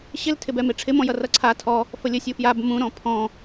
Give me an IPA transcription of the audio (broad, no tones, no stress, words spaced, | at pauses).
ɕɪltʰɪbɛ meʈ͡ʂʰɪmɔ̃jʌ rʌǀʰa tʰɔ | fəlʲə sʲufjab mũ ɾɔ̃pʰɔ̃